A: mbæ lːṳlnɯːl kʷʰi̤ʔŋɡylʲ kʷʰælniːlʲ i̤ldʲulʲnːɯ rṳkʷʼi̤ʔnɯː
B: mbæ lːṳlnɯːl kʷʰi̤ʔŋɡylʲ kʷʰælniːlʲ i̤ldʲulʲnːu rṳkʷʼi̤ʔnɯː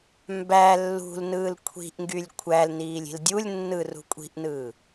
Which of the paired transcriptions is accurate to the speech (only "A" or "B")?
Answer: A